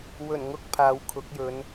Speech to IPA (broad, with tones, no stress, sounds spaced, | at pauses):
w ɵ˨˩ n ŋ ʊ˥ k̚ pʰ aː˨˧ w kʰ ʊ˨˥ k̚ j ɵ˨˧ n